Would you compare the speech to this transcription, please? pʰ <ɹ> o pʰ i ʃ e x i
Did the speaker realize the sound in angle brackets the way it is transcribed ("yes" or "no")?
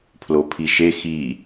no